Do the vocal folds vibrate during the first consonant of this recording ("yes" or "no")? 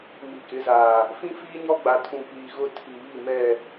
yes